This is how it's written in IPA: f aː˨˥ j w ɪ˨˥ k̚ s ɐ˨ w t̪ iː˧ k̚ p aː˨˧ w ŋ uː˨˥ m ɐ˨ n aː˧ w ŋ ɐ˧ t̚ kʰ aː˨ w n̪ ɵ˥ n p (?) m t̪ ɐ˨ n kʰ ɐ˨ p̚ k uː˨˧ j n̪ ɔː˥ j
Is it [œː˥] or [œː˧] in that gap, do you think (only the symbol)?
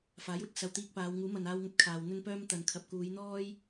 œː˥